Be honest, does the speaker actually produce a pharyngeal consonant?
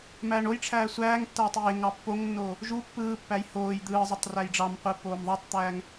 no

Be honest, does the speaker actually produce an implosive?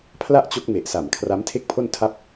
no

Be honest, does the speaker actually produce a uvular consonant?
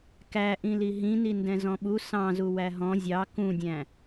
no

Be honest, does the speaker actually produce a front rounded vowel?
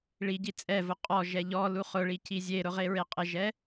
no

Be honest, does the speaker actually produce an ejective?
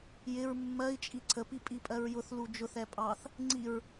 yes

